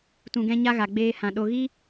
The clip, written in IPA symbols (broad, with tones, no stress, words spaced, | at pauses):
tũ˧ɡɛ̃˦ɲa˦ɣa˨ ɡ͡beː˧hã˨ ɗo˦ ɣi˦